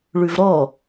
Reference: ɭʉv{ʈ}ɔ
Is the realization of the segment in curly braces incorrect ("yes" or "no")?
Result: yes